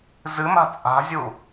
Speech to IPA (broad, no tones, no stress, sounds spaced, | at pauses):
z ɨ m a̤ t͡sʼ a̤ zʲ u